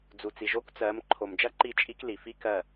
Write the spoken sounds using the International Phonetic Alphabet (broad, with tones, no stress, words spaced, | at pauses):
d͡zu˨t͡si˨ ʒo˦kt͡sɜ˨˦m ǃʰo˨md͡ʒɐ˦ ǃi˦˨t͡ʃʼi˦kli˨ fi˦ kɜ˦˨